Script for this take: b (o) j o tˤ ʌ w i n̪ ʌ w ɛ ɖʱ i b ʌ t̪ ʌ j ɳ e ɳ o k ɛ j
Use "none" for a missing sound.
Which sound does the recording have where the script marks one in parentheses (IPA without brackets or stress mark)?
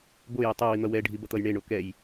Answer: o